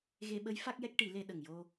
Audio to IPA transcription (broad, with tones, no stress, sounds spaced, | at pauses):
ɣ e˧ ɓ ə˧˥ j f a˦˥ k̚ j ɛ˦˥ k̚ ʈ i˨˩˦ l e˧ ɗ ə˨˩ ŋ j o˧